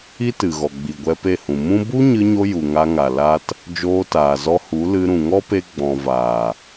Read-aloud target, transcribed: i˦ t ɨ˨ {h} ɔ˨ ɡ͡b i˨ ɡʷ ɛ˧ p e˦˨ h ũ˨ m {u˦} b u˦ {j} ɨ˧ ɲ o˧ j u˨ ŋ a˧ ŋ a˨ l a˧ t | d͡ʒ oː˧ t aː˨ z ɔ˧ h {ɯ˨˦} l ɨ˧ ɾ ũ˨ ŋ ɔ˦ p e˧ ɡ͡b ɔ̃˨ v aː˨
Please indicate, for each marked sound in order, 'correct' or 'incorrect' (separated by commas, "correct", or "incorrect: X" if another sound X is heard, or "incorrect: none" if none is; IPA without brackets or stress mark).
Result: incorrect: ɣ, incorrect: ũ˦, incorrect: ɲ, incorrect: u˨˦